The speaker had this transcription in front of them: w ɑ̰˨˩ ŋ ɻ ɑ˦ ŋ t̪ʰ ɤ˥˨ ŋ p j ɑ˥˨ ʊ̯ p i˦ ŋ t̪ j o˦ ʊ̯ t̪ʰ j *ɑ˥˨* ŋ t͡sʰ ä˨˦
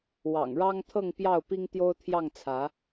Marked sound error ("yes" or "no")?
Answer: no